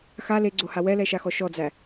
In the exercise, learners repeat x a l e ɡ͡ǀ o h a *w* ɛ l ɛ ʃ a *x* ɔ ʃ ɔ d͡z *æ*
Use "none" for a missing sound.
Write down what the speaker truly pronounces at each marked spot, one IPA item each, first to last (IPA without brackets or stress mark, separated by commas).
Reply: w, x, æ